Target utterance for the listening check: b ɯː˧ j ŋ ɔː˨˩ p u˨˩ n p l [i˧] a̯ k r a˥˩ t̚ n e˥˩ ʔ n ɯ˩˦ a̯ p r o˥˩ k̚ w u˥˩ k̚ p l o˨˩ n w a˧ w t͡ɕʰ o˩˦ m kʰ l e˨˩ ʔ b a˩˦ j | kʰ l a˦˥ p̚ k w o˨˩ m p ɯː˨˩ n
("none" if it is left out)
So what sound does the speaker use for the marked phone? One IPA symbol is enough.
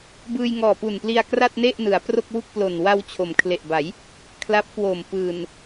i˧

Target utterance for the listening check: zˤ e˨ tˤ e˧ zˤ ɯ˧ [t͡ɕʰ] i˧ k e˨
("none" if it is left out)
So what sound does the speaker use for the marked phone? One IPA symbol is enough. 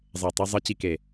t͡ɕ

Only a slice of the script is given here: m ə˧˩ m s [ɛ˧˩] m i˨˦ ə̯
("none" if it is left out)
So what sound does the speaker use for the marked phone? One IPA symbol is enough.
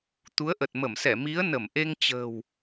ɛ˧˩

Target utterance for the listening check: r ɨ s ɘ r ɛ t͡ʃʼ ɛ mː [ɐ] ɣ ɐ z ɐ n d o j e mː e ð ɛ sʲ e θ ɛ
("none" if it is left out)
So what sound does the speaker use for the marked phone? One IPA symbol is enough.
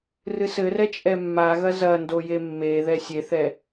a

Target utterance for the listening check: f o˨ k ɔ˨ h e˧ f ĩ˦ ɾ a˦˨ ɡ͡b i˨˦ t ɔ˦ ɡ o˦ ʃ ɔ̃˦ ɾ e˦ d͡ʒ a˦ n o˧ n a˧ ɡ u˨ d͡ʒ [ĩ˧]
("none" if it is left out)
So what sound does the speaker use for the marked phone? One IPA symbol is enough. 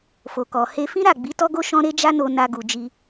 i˧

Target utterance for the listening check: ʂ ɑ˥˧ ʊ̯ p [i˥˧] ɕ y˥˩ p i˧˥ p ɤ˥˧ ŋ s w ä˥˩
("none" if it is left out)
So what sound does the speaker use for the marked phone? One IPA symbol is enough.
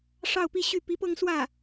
i˥˧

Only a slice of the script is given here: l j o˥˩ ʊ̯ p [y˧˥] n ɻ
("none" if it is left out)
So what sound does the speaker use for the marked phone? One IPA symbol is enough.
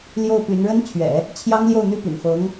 y˧˥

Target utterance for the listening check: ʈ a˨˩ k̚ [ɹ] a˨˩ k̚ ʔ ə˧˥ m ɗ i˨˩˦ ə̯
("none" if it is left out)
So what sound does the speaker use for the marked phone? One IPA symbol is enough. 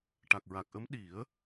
ɹ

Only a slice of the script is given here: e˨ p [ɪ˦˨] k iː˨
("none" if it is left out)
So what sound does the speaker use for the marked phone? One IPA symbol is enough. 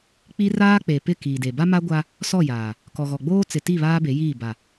ɪ˦˨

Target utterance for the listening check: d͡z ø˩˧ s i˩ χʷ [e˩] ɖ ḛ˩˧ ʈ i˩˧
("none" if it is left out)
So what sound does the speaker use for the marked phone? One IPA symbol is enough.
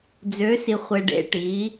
e˩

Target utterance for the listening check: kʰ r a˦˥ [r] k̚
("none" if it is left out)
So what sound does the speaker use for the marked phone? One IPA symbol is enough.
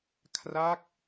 none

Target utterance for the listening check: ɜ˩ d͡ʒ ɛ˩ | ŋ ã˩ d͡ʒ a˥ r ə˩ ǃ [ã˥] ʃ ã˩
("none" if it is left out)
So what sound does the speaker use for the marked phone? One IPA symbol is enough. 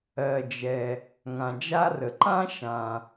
ã˥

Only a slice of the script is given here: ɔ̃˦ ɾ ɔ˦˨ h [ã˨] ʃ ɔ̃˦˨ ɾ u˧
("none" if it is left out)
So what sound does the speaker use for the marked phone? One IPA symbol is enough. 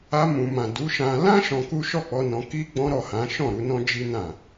ã˨˦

